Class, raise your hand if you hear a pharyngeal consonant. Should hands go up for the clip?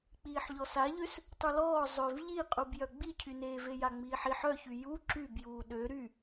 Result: yes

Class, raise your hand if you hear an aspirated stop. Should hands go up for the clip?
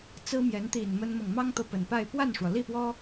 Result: no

